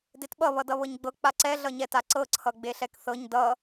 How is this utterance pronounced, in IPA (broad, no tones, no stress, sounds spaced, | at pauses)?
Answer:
d e t ɓ ʌ β ʌ d ʌ β ɤ ɲ ɡ͡b ɤ k͡p a ǀ ɛ ɮ ʌ ɲ ɛ t a ǀ ɤ ǀʰ ʌ ɡ͡b e ɬ ɛ k θ ɤ ɲ d ʌ